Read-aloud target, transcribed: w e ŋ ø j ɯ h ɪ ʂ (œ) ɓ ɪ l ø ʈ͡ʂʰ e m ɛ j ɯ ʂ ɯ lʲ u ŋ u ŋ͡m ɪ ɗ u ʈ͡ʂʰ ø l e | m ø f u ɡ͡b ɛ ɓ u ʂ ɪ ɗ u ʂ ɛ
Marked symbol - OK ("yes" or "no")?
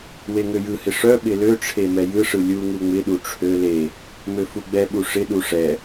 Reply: yes